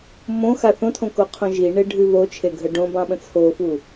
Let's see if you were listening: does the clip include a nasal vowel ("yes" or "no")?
yes